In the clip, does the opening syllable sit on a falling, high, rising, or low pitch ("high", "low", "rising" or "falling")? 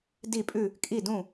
falling